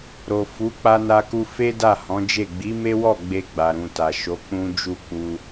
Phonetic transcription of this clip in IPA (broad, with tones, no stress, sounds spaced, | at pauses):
ɾ o˨ f u˨˦ k͡p a˧ n a˧ k u˧ f e˦ d a˦˨ h ɔ̃˨˦ d͡ʒ e˦˨ ɡ͡b i˨˦ m e˦ w ɔ˦˨ ɡ͡b e˧ ɡ͡b a˨ ɾ ũ˨ t a˨ ʃ o˨˦ k͡p ũ˦ d͡ʒ u˦˨ k͡p u˧